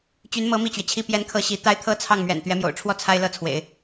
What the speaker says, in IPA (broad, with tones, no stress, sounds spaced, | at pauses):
t͡ɕ y˧˥ n m ɤ˧˥ m i˥˩ t͡ɕ ɥ ɛ˩ t͡ɕʰ i˥ p j ɛ˥ n kʰ ɤ˥ ɕ i˧˥ t̪ a˥ ɪ̯ t̪ʰ ɤ˥ t͡sʰ ɑ˥˩ ŋ m ɥ ɛ̰˨˩ n t̪ ɥ ɛ˧˥ m j o̰˨˩ ʊ̯ ʈ͡ʂʰ w ɔ˥˩ t͡sʰ a˥ ɪ̯ l ɤ˥˩ t͡sʰ w ḛ˨˩˦ ɪ̯